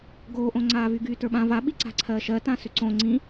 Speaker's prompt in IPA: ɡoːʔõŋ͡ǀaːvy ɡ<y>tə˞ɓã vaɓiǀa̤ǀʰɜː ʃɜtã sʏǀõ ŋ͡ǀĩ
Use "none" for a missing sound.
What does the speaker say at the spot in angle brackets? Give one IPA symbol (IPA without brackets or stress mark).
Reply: yː